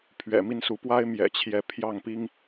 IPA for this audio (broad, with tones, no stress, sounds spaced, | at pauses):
pʰ ɥ ɛ̰˨˩ m i˦ n s u˨˦ p w a˦ ɪ̯ m j ɛ̰˨˩ t͡ɕʰ j ɛ˨˦ pʰ j ɑ˥˨ ŋ p i˦ ŋ